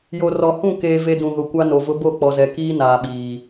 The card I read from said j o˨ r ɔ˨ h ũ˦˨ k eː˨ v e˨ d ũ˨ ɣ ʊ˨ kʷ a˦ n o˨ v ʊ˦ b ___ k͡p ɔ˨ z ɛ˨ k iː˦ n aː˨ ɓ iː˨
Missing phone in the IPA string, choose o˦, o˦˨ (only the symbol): o˦˨